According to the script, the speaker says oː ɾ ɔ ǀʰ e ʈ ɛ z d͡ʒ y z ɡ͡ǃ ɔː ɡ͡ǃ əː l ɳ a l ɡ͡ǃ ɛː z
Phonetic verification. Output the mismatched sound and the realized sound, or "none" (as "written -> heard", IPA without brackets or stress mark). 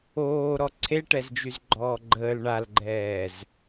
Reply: none